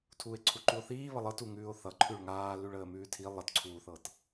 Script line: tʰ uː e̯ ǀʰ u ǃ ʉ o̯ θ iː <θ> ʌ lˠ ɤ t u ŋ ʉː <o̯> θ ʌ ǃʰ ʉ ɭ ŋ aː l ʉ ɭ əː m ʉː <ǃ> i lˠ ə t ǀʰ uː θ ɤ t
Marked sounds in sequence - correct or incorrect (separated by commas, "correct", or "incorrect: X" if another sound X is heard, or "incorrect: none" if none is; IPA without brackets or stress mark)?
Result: incorrect: β, correct, incorrect: tʰ